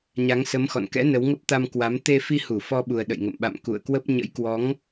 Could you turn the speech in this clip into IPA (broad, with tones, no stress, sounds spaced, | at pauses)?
ɲ a˨˦ ŋ s ə˨˦ m x ɔ̰˧˨ n k ɛ̰˧˥ n ə˨˦ w ŋ ə˦˥ p̚ t̪ a˧ m k w a˨˦ m t̪ e˧ f i˧ h u˧˩ f ɔ˧ ɓ u˨˩ ə̯ ɗ ə̰˧˨ j ŋ ə̰˧˨ m ɓ a̰˧˨ m k ṵ˧˨ ə̯ k w ə˦˥ p̚ ɲ ə̰˧˥ j k w ɔ˨˦ ŋ